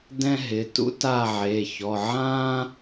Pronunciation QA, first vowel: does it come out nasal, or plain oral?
nasal